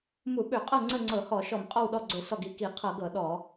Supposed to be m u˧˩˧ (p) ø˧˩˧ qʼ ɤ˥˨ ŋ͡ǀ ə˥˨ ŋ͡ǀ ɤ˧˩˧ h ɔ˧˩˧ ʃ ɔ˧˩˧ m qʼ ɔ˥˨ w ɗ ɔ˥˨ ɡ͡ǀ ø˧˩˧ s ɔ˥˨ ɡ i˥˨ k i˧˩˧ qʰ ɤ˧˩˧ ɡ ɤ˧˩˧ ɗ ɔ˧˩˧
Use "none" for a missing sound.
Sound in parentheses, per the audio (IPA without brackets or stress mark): ɓ